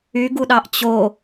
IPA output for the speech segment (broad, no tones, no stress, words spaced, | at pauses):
yɡuɗɑʔ t͡ɕo